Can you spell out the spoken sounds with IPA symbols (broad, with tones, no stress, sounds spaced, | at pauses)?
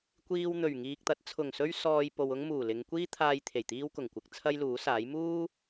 kʷ iː˧ w n̪ ɵ˨˩ ɥ ŋ iː˨ k̚ t̪ ɐ˨˥ t̚ t͡sʰ ʊ˨˩ ŋ s ɵ˥ ɥ s ɔː˧ j p o˨ w ʊ˥ ŋ m uː˨˩ l ɪ˨˧ ŋ kʷ iː˥ t̪ʰ aː˧ j t̪ʰ e˨˩ j t̪ iː˥ w k ʊ˨˩ ŋ kʷ ɪ˧ k̚ t͡sʰ ɐ˥ j l uː˨˥ s aː˨˥ j m uː˥